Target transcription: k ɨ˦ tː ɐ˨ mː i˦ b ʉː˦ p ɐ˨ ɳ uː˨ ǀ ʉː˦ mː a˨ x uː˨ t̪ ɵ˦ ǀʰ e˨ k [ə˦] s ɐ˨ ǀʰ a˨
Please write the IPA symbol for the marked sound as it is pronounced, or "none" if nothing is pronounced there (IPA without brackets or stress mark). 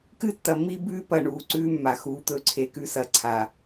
ʉ˦